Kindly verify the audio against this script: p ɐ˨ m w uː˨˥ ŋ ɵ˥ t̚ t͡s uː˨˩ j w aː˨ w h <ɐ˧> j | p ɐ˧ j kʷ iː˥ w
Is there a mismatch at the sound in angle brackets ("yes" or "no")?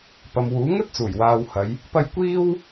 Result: yes